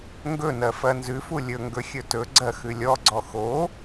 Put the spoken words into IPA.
ŋ ɡ ɵ n ɜ f ɜ n z ʉ f u lʲ ɵ ŋ ɡ ɵ xʲ ɵ t ɵ ɡ͡ǀ ɜ x ʉ lʲ ɔ ɡ͡ǀ ɔ x o

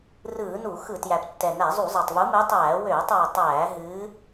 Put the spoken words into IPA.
r ɯː˧˩˧ n u˧˩˧ x ɯ˧˩˧ t j æ˨˩ p tː ɛ˨˩ n æ˧˩˧ zˤ u˧˩˧ zˤ a˨˩ tˤ v u˨˦ m ɨ˨˦ tˤ æː˧˩˧ w øː˧˩˧ tˤ w ø˨˩ tˤ æː˧˩˧ ɦ ɨː˨˦

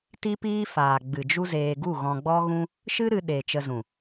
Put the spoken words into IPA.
t i˦ p iː˦ f aː˨ ɡ͡b ɨ˨ d͡ʒ u˦ z eː˧ ɡ u˦˨ ɣ ɔ̃˧ ɡ͡b ɔ˦ ɣ ũ˦ | ʃ ɨ˦ ɾ ɨ˧ ɗ e˨ t͡ʃ ə˧ z ũ˨

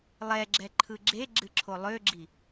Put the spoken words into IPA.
lˠ ɛ ɡ͡ǁ ɛ ǃʰ ɯ ɡ͡ǁ e ɡ͡ǁ ɨ ǁʰ o lˠ ø ɡ͡ǁ i

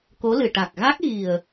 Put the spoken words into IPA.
k o˧˥ l ɨ˨˩ ʈ a˨˩ k̚ ɣ a˦˥ k̚ ɣ i˨˩ ə̯

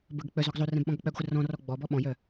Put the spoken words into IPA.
b ə ɡ k͡p œ z ɔ ɡ zˤ o r ɛ̃ b ɓ ɔ̃ ɡ ɔ k͡p œ ɡ χʷ ə r ɔ̃ r ɔ ɡ͡b ɔ b ɔ ɓ ɔ̃ j œ

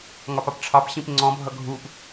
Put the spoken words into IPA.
ŋ ɒ p ɑ p ʈ͡ʂʰ ɑ p ɕ ĩ p ŋ͡ǀ ɔ̃ bʱ ʌ ɡʱ u p

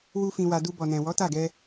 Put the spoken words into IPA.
w u˦ f ĩ˧ w a˧ d u˧ b ɔ˨ n ɛ̃˨ w ɔ˨˦ t a˦˨ ɡ ɛ˧

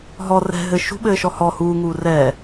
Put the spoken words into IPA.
ɦ ɔ r ɛ̤ ɦ ɘ ʃ ṳ ɓ ɘː ʃ ɔ h ɔ h uː ŋ uː r ɛː

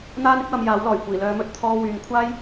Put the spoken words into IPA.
n̪ aː˥ n ɪ˥ k̚ w ɐ˧ m j aː˨˥ w l ɔː˨˩ j kʷ iː˨˩ l œː˨˧ m ɵ˨˥ t̚ t̪ʰ ɔː˧ w yː˨ ŋ kʷʰ aː˥ j

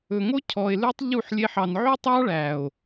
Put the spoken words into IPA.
ɵ˨ ŋ o˦ cʰ ɔ˨ e̯ l ʉ˧ tˤ ʎ u˦˨ ħ lʲ e˧ ħ ɑ˨ n ʕ y˦ tˤ ɑ˦ ɭ æ˨ o̯

